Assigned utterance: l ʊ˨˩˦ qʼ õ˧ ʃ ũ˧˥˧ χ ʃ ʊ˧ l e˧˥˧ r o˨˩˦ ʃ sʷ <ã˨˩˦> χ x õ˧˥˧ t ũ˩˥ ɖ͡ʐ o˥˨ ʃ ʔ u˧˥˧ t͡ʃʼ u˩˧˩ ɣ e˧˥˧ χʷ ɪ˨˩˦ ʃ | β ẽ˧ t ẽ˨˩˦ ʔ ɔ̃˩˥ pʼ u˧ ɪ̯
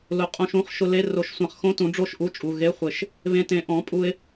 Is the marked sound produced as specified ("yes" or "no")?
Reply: yes